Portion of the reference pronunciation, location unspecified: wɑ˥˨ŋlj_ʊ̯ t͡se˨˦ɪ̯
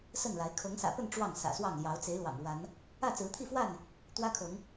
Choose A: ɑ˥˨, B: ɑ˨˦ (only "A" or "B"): B